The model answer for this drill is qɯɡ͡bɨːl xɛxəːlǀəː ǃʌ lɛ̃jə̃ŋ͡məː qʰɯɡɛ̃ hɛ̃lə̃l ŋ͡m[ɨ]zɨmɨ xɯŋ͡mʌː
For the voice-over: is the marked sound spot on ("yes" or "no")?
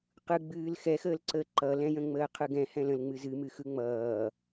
yes